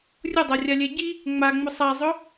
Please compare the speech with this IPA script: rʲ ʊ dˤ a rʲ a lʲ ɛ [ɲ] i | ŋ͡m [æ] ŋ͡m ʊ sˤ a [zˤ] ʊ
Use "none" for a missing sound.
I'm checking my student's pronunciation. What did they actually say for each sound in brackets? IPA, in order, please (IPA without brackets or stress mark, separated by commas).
ɟ, a, zˤ